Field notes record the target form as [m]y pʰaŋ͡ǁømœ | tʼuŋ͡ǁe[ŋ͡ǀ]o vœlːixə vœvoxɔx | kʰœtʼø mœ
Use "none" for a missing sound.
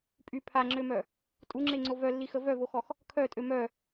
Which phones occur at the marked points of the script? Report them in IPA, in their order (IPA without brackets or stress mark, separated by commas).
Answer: pʼ, ŋ͡ǀ